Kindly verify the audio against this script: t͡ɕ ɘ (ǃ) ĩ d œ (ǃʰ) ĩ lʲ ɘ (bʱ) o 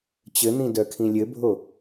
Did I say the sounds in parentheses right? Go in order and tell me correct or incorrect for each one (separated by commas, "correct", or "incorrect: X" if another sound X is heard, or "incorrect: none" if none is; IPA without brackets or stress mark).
incorrect: n̪, incorrect: kʰ, correct